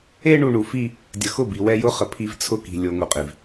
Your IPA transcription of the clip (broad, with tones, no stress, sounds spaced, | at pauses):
e˦ ɳ u˨ ɳ u˨ f i˦ | dʲ ə˨ x ʊ˦˨ b i˨ w ɛ˦ j ʊ˦ χ ə˨ pʰ i˦ v t͡sʰ ʊ˦ k i̤˨ lʲ o˦ ŋ u˨ qʼ i˨ v